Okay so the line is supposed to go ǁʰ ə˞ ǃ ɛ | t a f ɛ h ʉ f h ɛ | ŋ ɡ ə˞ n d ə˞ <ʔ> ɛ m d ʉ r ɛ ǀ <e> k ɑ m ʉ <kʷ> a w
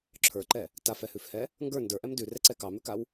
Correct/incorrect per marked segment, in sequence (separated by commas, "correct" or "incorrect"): correct, incorrect, incorrect